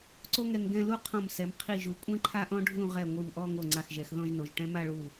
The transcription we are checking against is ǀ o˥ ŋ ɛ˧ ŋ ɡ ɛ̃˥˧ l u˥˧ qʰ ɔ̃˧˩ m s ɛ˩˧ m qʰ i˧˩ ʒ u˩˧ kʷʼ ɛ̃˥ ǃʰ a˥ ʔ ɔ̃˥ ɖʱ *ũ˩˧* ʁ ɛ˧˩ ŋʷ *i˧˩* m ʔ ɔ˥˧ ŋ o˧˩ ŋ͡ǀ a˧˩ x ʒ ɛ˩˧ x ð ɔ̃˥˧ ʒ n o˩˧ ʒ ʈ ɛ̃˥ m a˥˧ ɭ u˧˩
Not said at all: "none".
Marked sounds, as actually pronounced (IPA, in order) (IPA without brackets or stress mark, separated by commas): ũ˥˧, i˧˩